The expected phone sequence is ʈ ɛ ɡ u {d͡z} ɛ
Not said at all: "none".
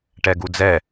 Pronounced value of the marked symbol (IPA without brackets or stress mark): d͡z